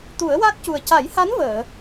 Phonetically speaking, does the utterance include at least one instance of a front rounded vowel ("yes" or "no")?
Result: no